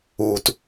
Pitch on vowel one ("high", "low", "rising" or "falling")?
low